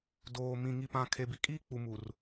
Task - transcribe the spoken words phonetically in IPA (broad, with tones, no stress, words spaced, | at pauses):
doː˨mĩ˨ ŋi˨pã˨ kʰe˨bi˨kʼiː˦ k͡pu˨mu˨r